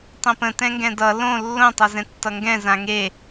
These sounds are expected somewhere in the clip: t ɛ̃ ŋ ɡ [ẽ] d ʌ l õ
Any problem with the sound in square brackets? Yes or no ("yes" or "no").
yes